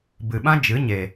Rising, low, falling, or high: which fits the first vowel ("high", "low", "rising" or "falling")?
low